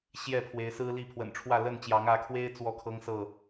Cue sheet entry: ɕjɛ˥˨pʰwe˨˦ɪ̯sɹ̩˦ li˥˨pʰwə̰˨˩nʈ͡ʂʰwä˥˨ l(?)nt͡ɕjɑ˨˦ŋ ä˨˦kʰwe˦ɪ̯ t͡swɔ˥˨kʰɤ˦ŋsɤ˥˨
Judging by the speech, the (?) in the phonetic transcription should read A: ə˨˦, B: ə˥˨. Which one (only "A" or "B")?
B